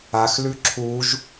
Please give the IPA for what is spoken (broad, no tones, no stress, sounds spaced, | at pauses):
a x l ʉ ǁʰ u ʒ